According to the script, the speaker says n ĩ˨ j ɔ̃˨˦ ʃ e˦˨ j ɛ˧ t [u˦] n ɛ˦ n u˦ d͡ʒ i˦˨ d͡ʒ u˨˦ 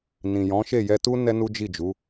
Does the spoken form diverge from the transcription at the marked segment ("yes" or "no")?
no